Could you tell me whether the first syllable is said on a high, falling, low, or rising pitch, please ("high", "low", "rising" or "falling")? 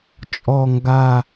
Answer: low